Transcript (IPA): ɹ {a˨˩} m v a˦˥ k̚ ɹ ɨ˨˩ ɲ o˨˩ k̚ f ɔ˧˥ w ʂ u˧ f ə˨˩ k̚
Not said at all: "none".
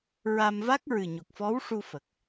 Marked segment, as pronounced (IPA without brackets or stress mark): a˧